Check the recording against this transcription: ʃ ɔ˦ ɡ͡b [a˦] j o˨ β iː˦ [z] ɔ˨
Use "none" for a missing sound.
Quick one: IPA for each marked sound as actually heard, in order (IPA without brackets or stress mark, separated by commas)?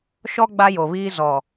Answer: a˦, z